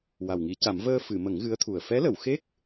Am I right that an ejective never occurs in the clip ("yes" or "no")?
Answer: yes